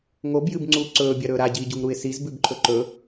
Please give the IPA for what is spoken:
ŋ o b j ɨ b ŋ͡ǀ uː ǀ ɵː bʲ ɐ ɾ ɵː ɾ a ɟ iː ɟ u ŋ ɾ u ɪ̯ s i z b ʉ b ǃʰ ɵ ǃ ɵ

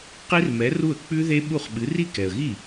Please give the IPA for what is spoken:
q i˦˥ r m ɛ˨˥ r u˥˩ ə̯ k͡p ʉ˦˥ ð e˦˥ ɓ u˥˩ χ ɓ ɨ˨˥ r i˥˩ k ɛ˨ ə̯ ɣ i˥˩

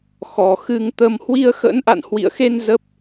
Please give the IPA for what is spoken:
x ɔ˨˩ x ɨ˧ ŋ t̪ ə˧ m h w i˧ ə̯ x ə̰˧˥ n ʔ a̰˧˨ n h w ḭ˧˨ ə̯ x e˧ n z ə˦˥ p̚

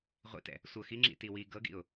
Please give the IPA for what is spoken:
ʁʷ ḭ t ɛ̰ | sʷ ɤ x i ŋ͡ǁ ḭ t i w i ɡ ɤ ɡ ḭ ʊ̯

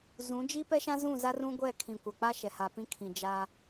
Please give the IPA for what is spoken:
z ũ˨˦ d͡ʒ i˦ p ɛ˦ ʃ ã˦ z ũ˦˨ z a˦ r ũ˦ ɡʷ ɛ˦˨ kʰ ĩ˨ kʷ a˨ k͡p a˦ ʃ ɛ˨ h a˨ p ĩ˦ kʰ ĩ˨ d͡ʒ a˦

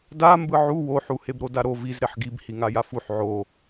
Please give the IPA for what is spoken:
d a m b ɯ ʕ u w o ħ u h e b ɾ o d a ɾ o v i z ɾ e ħ ɡ i b h i ŋ a j a f u ħ ʕ o

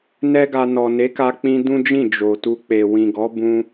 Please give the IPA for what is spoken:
n ɛ˦ ɡ a˧ n ɔ˨ n e˨˦ k a˧ k͡p ĩ˧ d ũ˦ d͡ʒ ĩ˦˨ d͡ʒ o˨ t u˧ k͡p e˨ w ĩ˨ ɡ ɔ˨˦ b ũ˦

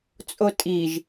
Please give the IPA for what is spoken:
t͡sʼ o tʼ i ʒ

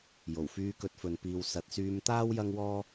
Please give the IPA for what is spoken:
j o˨˩ w f yː˧ k ɵ˧ t̚ f ɵ˨˧ n p iː˨ w s ɐ˨ t̚ s yː˧ m t̪ aː˥ w j ɐ˥ ŋ w ɔː˥

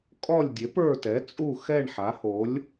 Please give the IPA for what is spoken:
kʼ ɔ˦˨ lʲ dʲ e˩˥ p ə˞˦˨ t ɛ˩˥ t͡sʼ u˦˨ x ɛ˦˨ ɳ ħ a˩˥ h o˩˥ lʲ

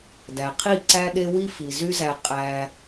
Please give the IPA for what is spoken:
d æ˨ qʰ i˦˨ ǀ æ˦ ɗ e˦ w i˦ f i˨ z y˦ z æ˧ qʼ æ˧

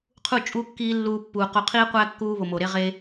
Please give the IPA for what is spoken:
qʰ u˦˨ t͡ʃʼ u˦ kː iː˦ lː uː˧ pː uː˨ q o˧ qʰ iː˦ qʷ æ˦ kː uː˧ β o˨ m o˨ ɾ e˧ ʁ e˧

